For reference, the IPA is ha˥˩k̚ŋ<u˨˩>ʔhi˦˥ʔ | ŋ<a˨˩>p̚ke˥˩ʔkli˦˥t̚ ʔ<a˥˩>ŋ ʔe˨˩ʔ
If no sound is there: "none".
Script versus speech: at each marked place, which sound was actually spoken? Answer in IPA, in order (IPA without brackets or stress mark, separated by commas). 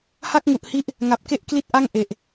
u˨˩, a˨˩, a˥˩